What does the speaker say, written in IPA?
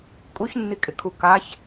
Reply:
kʼ u ç nː i kʼ ɪ kʰ u k a ç

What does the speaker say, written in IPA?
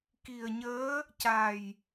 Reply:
k i˨˩ ə̯ ɲ əː˧˥ | c a˨˩ j

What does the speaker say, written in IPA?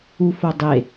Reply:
u f o dˤ e

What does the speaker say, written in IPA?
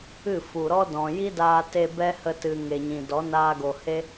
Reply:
ɨ˦˨ f u˨ ɾ ɔ˦ d ɔ̃˨ j i˦ d aː˧ t e˧ b ɛ˦ h ə˧ t ɨ˨ ŋ e˨ ɲ ĩ˨ d ɔ˨˦ n aː˧ ɡ o˨ h e˦

